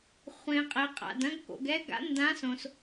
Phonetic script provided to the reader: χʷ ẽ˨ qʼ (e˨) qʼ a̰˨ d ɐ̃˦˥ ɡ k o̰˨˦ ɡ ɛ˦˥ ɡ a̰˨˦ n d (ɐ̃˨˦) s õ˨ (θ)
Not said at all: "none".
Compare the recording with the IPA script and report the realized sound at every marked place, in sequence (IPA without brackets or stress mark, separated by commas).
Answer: e˨, ã˨˦, s